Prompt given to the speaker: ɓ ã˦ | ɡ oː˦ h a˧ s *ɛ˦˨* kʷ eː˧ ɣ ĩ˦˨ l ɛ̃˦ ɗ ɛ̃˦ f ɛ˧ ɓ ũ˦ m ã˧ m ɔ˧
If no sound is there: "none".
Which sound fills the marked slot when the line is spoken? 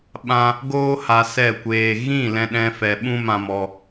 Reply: ɛ˦˨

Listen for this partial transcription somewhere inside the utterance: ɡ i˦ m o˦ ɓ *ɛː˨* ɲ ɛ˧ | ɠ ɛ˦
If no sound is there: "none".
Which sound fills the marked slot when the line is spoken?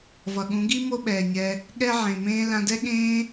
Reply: ɛː˨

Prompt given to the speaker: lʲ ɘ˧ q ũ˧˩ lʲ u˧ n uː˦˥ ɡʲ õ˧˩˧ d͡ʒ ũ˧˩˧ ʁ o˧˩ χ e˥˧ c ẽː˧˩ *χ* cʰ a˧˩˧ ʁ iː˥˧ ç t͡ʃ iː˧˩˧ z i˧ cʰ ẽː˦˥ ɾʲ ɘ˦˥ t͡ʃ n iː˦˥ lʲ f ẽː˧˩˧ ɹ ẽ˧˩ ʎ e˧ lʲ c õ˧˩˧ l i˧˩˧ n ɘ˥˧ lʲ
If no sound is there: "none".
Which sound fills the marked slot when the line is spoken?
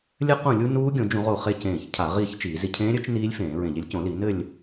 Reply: ç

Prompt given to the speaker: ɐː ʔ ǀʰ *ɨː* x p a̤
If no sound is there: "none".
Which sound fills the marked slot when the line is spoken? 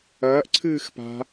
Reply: ɨː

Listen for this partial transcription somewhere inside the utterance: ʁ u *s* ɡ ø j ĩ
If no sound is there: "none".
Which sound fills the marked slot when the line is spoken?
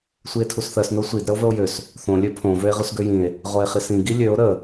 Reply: s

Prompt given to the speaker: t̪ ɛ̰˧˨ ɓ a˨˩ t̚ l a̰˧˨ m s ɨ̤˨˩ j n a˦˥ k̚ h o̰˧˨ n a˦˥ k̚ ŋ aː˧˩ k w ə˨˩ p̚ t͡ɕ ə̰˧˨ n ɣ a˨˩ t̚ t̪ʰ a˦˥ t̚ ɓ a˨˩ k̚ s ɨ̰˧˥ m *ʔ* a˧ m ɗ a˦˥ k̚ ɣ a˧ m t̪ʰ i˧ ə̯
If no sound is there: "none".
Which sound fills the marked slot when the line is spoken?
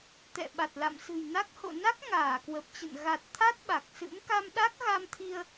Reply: k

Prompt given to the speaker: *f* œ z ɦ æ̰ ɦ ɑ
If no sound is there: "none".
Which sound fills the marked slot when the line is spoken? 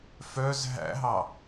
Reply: f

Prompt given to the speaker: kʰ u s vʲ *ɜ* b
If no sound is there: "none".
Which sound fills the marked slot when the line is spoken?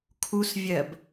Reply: ɜ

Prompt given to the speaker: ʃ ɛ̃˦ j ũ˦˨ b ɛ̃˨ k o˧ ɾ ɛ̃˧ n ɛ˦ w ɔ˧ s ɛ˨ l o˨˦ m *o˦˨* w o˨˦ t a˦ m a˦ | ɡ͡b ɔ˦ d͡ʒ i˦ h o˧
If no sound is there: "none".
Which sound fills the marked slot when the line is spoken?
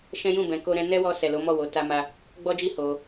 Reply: ɔ˦˨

